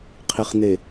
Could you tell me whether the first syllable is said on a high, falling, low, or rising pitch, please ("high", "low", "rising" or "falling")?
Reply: low